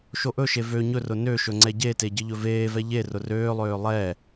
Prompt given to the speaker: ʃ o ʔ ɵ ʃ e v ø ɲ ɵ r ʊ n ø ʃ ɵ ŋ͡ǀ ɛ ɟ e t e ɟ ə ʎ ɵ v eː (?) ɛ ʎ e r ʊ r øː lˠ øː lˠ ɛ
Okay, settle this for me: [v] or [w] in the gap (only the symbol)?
v